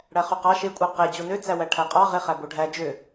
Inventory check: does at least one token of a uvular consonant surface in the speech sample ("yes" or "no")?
yes